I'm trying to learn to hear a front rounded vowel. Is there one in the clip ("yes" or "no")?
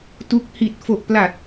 no